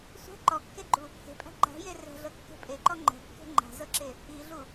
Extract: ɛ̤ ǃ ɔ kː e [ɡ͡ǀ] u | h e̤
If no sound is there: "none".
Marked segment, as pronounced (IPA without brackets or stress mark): ɡ͡ǃ